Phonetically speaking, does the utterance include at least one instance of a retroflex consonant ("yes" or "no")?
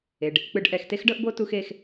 yes